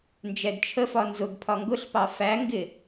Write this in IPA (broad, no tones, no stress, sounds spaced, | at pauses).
n d͡ʒ ɛ d t͡ʃʰ ə f ɒ n z ʊ ɡ pʰ ɒ ŋ ɡ ʊ ɬ p ɑ f æ ŋ ɡ ɪ